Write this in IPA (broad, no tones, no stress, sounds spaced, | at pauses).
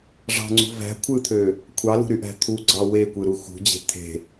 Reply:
ʐ ɑ̤ ŋ͡ǀ ṳ v æ̤ kʷʰ ɯ t̪ʰ ø | kʷʰ ɑ l ṳ ɾ y ʔ æ̤ t̪ʰ u ɡ͡ǀ ɑ w e kʷ ɯ ɾ u x ṳ d͡ʑ e̤ t̪ʰ e̤